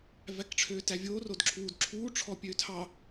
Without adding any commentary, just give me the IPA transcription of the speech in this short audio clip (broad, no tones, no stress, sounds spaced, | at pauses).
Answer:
v æ k ʈ͡ʂʰ øː t æ vʲ oː r o d ǁʰ uː d ǁʰ uː ʈ͡ʂʰ ɔ pʲ øː tʰ ɑ